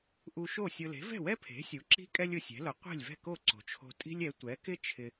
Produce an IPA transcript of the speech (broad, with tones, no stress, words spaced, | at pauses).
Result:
ʔu˧ʃo˥˩sʲʊ˧ le̤˩˥vɛ̤˥˩wɛ˥pʰe̤˩˥ sʲu˩˥ǁi̤˥ kʼɛ˥lʲ ʊ˧sʲɛ̤˩˥lʊ˩˥ qʷe̤˥˩lʲvɛ̤˥˩ko˥˩ ǀo̤˩t͡ʃʰo̤˧ tʼi̤˥lʲɛ˩˥ tʷɛ˩˥kɪ˥ t͡ʃʰɪ˧